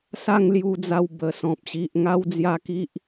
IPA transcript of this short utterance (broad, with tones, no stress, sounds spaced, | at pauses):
s a˥˧ ŋ l j u˧ d͡z a˧ w b ə˨˩ s ɔ̃˨ p̚ ɕ i˨ ʔ ŋ a˦ w d͡z j a˥˧ k i˦ ʔ